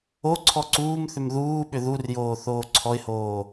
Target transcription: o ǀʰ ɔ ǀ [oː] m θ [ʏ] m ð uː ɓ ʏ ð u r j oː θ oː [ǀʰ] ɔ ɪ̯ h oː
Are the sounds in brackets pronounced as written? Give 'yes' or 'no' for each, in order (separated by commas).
no, yes, yes